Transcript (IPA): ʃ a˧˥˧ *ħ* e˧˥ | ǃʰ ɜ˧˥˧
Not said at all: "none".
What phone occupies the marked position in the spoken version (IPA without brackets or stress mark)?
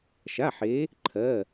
ħ